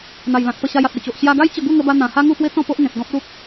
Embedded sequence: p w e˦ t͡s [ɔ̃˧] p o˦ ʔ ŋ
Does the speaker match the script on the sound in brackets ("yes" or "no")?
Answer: no